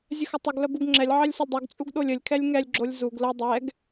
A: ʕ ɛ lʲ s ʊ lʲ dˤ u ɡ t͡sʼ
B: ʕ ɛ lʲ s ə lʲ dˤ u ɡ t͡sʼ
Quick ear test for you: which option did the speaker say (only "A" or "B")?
B